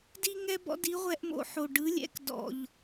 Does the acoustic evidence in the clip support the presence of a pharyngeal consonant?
yes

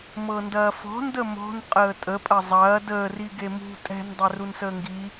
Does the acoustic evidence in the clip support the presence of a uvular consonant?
yes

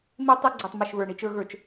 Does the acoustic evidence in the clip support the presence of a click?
yes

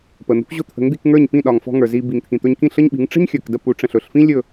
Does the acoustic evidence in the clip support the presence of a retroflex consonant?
yes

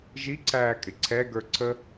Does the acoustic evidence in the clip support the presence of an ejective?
yes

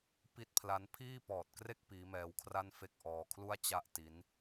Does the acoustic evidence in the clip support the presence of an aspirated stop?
yes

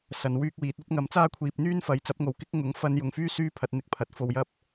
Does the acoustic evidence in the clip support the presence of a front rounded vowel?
yes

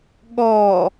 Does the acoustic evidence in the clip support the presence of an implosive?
yes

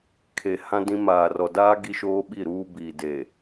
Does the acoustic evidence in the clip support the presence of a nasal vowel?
yes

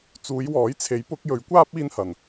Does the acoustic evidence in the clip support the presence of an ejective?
no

